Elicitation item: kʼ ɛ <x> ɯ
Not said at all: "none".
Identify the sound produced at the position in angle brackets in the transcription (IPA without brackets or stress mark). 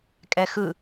x